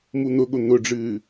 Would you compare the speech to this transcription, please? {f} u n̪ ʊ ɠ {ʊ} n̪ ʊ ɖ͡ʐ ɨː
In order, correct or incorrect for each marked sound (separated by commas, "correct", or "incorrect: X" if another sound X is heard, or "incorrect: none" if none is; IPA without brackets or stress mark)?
incorrect: m, correct